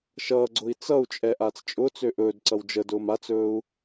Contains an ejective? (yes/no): yes